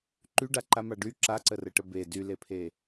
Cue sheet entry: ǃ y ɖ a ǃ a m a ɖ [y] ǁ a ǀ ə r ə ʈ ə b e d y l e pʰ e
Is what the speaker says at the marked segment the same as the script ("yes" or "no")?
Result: yes